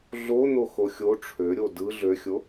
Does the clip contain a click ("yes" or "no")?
no